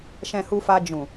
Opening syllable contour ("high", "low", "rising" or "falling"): low